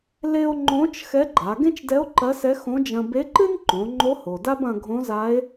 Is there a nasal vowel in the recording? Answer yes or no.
yes